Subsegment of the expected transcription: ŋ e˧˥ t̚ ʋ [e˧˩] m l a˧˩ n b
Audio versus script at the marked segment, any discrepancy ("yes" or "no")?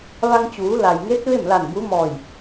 yes